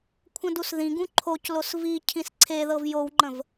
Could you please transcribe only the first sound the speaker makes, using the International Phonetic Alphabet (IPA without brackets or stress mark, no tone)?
kʷʰ